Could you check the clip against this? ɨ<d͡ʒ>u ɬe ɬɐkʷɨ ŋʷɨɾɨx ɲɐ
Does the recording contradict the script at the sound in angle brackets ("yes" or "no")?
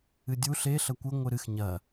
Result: yes